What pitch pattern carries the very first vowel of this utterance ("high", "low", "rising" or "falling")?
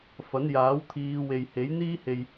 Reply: rising